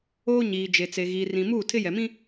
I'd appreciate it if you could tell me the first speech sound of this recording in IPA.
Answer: oː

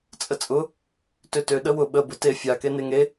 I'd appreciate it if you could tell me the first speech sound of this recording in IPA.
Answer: t͡sʼ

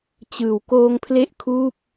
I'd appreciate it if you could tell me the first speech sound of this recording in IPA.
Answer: t͡ɕ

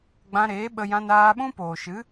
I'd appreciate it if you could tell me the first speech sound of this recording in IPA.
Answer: ɡ͡b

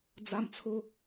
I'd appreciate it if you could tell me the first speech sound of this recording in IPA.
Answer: d͡z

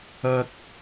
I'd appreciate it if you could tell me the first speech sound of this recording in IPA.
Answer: ɐ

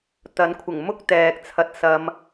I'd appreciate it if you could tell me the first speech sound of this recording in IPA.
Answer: t̪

